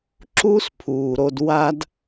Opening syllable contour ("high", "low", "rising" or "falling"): high